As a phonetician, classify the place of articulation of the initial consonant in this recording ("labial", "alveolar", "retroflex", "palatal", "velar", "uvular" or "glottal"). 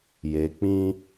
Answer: palatal